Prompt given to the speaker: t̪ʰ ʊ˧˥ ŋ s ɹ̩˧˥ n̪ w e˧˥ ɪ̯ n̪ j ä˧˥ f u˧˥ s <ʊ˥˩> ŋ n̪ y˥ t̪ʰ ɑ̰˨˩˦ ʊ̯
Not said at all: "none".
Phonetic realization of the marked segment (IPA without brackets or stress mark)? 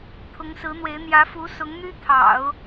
ʊ˧˥